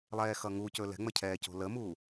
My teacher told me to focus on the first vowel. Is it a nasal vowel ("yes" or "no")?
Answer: no